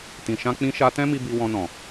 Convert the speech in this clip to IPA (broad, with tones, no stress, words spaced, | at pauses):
tĩ˨ʃã˧k͡pĩ˧ ʃa˧tɛ̃˦mi˧ bi˧wɔ̃˧nɔ̃˨